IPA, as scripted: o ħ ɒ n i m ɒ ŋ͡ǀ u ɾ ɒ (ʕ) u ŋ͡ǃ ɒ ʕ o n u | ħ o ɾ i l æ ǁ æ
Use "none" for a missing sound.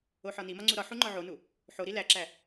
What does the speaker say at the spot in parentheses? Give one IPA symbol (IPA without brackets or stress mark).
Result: ħ